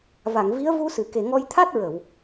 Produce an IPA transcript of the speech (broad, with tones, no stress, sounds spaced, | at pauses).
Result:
v a˨˩˨ ŋ v i˧˥ ə̯ v u˧ s ɨ˨˩˨ k e˨˩ ŋ ɔ˧ j t̪ʰ a˦˥ t̚ ɹ ə˨˩˨ w